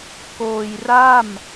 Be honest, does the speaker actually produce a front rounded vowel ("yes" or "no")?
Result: no